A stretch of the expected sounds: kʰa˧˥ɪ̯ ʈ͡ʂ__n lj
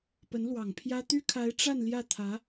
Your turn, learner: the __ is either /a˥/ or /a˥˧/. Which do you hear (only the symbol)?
a˥˧